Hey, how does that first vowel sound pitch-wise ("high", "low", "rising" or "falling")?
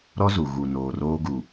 high